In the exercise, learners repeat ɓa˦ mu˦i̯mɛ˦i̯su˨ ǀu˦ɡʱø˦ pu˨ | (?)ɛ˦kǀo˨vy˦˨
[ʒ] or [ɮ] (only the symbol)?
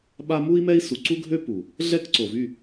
ɮ